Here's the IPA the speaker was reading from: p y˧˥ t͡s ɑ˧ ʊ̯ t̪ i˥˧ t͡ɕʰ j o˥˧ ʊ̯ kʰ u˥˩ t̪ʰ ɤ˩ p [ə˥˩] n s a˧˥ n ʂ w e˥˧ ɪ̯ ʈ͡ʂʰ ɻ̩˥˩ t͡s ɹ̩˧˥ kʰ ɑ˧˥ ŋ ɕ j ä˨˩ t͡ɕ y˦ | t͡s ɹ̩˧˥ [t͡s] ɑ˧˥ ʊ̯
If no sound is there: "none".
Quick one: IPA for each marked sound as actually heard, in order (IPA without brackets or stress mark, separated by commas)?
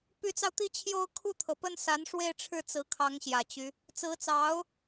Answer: ə˥˩, t͡s